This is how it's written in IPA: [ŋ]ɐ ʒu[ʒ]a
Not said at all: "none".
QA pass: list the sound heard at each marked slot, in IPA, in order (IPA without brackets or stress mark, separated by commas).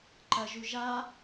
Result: ǃ, ʒ